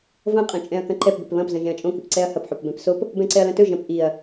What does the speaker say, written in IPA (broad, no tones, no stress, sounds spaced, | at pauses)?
v ɐ̃ qʼ ɐ̃ t͡ʃʼ ɛ̃ ɐ̯ k ɐ̃ ǃ ɛ p b ɛ̤ p β ɐ̃ p z ɐ̃ ʒ ɛ̃ ɐ̯ t͡ʃʼ õ k i p ǀ ɛ ɐ̯ h ɐ p ħ o p b ɛ̃ p s o p | b ɛ̃ ǀ ɛ ɐ̯ l ɐ̃ t ɵ ʒ ɐ̃ p ʔ i ɐ̯